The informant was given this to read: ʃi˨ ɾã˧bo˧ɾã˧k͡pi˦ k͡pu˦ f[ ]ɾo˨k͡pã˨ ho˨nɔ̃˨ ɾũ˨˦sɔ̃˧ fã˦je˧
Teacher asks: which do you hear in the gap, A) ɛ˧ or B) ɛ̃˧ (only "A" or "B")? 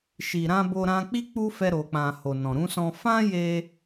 A